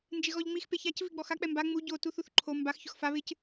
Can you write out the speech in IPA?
n d͡ʒ ɪ ɣ ɔ ʎ ŋ͡m i x p e ç a c v i ɡ͡b ɔ x a k͡p ɛ m b a ŋ͡m u ɟ o t u θ u θ ǃʰ o m b a x ç ʊ x f a β ɪ c

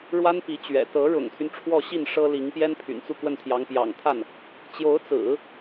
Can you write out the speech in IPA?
ɻ w a˥ n p i˧˥ t͡ɕ ɥ ɛ̰˨˩ t̪ ɤ˧˥ ɻ ʊ̰˨˩ ŋ t̪ʰ y˦ n ʈ͡ʂʰ w ɔ˥˧ ɕ i˥˩ n ʂ ɤ˥ l i˧˥ ŋ p j ɛ˥ n pʰ y̰˨˩ n t͡s u˥˧ k w ə˥˩ n t̪ʰ j ɑ˧˥ ŋ p j ɑ̰˨˩ ŋ t̪ʰ a˥˩ n | t͡ɕ j o˧˥ ʊ̯ t͡s ɹ̩˨˩˦

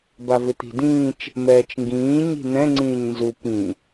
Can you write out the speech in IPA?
b a v ɪ t̪ i̤ d ĩː t͡ʃ | m ɛː t͡ʃ ŋ ɡ ĩː ɲ i̤ n̪ ɛ̃ ŋ͡ǀ ĩː ɲ n z u p ĩ

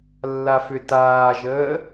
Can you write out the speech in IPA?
lː a f ʏ t aː ʒ əː

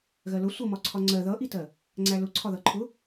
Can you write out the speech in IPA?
ɣ ɜ l ʊ sʷ ʌ m ɒ ǀʰ ɒ ŋ͡ǀ ɜ ð ʌ ʔ i t ɜ | ŋ͡ǀ æ l ʊ ǀʰ ɒ ð ʌ ǃʰ ʊ

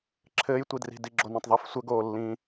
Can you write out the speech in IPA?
ǁʰ ɘː j tʷ i d r i̤ d i ɡ͡ǁ o n õ tˤ ðˤ i f sʷ ə ɡ oː lː ĩː

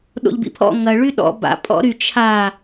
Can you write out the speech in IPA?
ɗ o̰ ʎ b ḭ pʰ ɔ̰ ŋ ɐ ɭ y ɗ ɔ̰ b a̰ pʼ ɔ̰ ɾ y t͡ʃʰ a

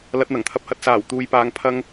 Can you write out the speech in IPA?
l ɐ˧ t̚ n̪ ɐ˨˩ ŋ t̪ʰ ɐ˨˥ p̚ h ɐ˨˥ t̚ s aː˨˩ w t̪ uː˨˧ j p aː˧ ŋ pʰ ɐ˥ ŋ

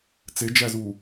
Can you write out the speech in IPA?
t͡s e d͡ʒ æ z u

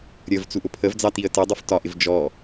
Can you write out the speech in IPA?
ɾʲ ə v t͡s u ʔ ʊ pʰ ə v d͡z ɑ t i ə̯ t ə dˤ ʊ f t ɒ ʔ ɪ v d͡ʒ ɔ

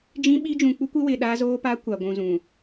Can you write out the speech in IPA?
d͡ʒ ĩ˦ ɓ i˦ d͡ʒ ũ˨ k͡p u˦ kʷ ɪ˦ w ɪ˨ ɗ aː˦ z oː˦ p a˦ kʷ a˨ ɡʷ ũ˨ z ũ˨

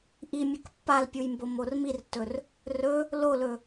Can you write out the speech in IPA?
ʔ i mʲ ɵ k pː a l pʲ u j m b o m o r m i r tː ɵ r | r ɵ | l o l ɵ

